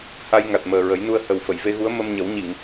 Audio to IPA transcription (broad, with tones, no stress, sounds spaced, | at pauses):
h a˧ j ŋ a˨˩ t̚ m əː˨˩ ɹ ə˨˩˦ j n u˧ ə̯ h ə˨˩ w f ə˨˩˨ j v e˧ ɣ u˧˥ ə̯ m ə˧ m ɲ ə˨˩˦ w ɲ i˨˩˨ ŋ